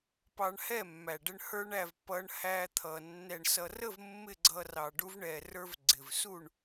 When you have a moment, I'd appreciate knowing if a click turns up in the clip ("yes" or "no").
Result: yes